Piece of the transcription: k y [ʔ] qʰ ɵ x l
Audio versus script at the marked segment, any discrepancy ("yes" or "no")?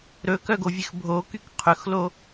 yes